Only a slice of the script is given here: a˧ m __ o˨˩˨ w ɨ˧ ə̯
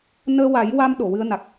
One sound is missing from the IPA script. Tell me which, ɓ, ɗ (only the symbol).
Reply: ɗ